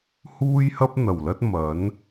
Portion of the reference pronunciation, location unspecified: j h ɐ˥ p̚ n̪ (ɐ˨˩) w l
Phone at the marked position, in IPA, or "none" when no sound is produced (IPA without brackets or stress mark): ɐ˨˩